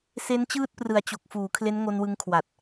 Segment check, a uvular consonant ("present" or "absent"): absent